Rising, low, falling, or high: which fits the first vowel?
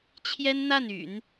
high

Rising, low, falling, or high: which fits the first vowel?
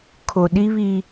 low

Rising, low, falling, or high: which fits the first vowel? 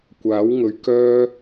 rising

